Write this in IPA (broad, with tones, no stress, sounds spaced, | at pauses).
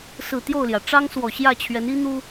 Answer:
s ɹ̩˨˩ t̪ j o˥˨ ʊ̯ l j ä˩ ʈ͡ʂ ɑ˦ ŋ s w ɔ˨˩ ɕ j ä˥˨ t͡ɕʰ ɥ ɛ˨˦ n i˦ n̪ u˦